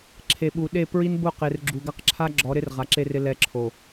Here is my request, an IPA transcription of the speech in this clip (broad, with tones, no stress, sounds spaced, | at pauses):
ǁʰ e˨ ɓ u˨ ɗ e˦˨ p ɹ i˦ n b ʊ˦˨ q e˨ r ɡ͡ǁ u˨ ɡ a˦ q ǁʰ a˦ ɡ͡ǁ ɔ˨˦ ɾ ɪ˦ r ʁ a˨ ǁ e˦ r ɪ˦ l ɛ˦ ǁʰ o˨